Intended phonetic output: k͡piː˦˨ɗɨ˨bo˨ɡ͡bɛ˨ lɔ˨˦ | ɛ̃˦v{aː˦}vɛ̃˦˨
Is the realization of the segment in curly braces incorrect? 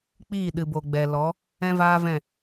no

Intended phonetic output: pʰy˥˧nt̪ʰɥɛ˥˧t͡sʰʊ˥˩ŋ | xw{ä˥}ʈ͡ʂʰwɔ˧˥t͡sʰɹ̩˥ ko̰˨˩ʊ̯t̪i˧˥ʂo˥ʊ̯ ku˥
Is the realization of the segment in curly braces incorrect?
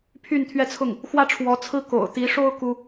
no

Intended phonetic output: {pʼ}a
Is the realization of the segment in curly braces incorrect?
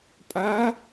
no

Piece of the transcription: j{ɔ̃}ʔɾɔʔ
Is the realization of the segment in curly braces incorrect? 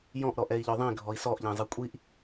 no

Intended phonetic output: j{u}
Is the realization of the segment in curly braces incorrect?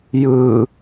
yes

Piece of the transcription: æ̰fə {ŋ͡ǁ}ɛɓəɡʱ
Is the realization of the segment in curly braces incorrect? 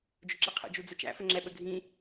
no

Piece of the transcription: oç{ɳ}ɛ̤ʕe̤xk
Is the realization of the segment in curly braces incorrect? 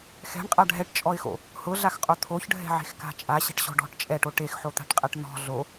yes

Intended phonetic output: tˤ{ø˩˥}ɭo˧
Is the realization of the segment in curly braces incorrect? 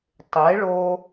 yes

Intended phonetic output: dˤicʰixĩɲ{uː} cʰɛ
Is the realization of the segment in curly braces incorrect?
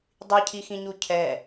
yes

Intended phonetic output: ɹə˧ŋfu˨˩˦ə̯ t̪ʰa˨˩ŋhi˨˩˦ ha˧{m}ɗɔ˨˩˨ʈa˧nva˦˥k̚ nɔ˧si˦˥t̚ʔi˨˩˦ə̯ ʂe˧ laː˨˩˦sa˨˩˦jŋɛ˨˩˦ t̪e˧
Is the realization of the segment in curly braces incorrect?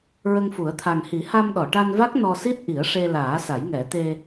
no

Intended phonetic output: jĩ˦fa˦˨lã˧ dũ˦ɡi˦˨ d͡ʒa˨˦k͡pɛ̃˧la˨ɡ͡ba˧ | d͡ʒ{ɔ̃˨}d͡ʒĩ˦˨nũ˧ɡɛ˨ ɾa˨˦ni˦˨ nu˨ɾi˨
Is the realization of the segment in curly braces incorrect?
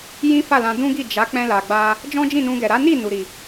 yes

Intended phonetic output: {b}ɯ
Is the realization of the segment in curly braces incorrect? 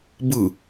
no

